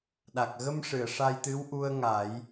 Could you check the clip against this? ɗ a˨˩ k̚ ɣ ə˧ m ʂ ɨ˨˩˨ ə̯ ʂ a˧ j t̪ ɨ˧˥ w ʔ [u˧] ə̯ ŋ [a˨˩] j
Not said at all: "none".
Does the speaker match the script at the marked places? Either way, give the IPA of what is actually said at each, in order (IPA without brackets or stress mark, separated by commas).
u˧, a˨˩˦